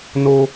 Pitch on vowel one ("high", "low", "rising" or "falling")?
high